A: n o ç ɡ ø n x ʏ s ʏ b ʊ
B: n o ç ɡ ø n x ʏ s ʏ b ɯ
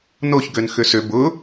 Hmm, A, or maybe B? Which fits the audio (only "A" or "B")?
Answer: A